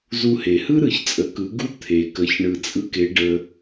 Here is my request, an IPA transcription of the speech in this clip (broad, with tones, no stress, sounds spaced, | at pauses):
z u˧ h e˩ h ɯ˥ ɾ ɯ˩ ç t͡sʼ ə˩˧ k ɯ˩˧ ɡ u˧˥ t̪ʰ e˩ k ə˩˧ ç ɳ ɯ˩ t͡sʼ ɯ˧ k e˩˧ ɖ ə˩